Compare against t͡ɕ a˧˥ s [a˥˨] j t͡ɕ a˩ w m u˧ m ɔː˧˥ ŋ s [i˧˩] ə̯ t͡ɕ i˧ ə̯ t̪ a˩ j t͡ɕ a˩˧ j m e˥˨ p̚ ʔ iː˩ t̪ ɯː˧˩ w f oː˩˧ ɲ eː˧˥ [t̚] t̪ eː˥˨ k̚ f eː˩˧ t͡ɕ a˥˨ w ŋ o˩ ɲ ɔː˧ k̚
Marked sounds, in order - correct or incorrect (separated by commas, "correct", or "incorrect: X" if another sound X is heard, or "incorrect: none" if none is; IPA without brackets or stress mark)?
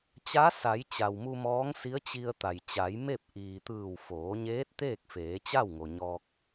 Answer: incorrect: a˩˧, incorrect: i˧˥, correct